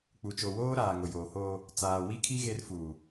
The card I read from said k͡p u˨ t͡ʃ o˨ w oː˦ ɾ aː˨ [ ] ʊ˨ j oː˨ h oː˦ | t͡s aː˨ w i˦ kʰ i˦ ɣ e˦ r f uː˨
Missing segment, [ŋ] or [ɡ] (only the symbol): ŋ